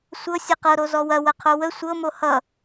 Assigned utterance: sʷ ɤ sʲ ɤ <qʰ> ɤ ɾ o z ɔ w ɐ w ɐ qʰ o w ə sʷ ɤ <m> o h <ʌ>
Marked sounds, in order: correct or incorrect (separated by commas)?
incorrect, correct, correct